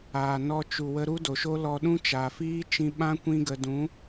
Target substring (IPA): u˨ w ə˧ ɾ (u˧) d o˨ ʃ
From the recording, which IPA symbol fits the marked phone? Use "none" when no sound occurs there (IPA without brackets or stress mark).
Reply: u˦